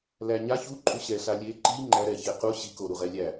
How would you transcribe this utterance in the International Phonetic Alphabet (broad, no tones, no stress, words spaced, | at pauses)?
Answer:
læɲa çuǃʼuɕɛ ɬalʲe ǃi ŋ͡ǃæɾɛçe qu ɕiko ɾuʁɛlʲæ